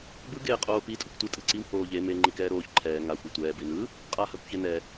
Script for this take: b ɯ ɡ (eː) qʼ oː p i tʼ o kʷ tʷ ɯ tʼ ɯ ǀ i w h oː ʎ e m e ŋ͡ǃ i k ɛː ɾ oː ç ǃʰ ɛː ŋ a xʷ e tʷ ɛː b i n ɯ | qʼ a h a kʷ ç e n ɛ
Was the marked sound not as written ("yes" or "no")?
no